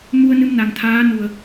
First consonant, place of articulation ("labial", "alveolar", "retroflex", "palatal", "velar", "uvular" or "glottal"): labial